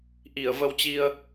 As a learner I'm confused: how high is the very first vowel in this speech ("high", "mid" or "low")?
high